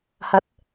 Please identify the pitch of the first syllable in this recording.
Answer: rising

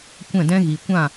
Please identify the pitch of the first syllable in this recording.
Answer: falling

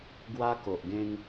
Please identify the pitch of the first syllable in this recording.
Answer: high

